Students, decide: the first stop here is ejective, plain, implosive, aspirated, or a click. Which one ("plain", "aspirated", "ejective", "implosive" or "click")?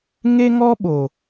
implosive